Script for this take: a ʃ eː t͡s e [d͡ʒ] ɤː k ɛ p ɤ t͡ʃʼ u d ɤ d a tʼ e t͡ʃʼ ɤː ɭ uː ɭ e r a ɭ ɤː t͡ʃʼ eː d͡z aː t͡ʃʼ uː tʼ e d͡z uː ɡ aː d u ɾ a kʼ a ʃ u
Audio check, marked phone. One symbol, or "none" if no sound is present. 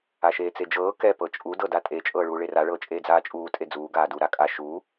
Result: d͡ʒ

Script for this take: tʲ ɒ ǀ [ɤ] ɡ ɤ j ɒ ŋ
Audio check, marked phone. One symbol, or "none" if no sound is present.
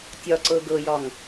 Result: ɤ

